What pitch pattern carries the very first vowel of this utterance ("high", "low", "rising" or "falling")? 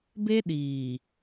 high